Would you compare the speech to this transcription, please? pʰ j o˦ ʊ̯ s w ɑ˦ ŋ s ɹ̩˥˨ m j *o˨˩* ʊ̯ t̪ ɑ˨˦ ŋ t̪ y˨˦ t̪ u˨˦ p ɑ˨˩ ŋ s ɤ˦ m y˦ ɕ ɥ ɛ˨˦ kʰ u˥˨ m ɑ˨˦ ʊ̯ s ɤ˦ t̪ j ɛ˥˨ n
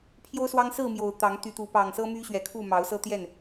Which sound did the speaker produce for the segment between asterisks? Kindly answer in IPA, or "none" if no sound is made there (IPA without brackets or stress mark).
o˨˩